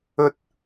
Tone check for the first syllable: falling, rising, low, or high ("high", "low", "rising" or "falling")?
high